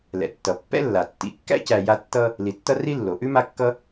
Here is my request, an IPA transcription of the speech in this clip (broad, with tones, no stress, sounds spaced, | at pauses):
l ɛ̰˩ tː ʌ˩ pː ɛ̰˥ lː a˩ tː ḭ˨ kː æ̰˥ c æ˨ j a˦ tː ʌ˥ | l i˨ tː ʌ˥ r i˥ lː o˩ ʔ ʉ˥ m a˦ kː ʌ˦